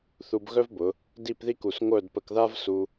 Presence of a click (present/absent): absent